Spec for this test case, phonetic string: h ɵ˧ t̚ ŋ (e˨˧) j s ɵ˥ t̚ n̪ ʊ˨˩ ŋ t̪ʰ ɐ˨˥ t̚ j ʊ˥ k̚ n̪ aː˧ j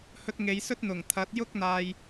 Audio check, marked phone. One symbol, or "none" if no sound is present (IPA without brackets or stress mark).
e˨˧